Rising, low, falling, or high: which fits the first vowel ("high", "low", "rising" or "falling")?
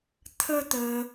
high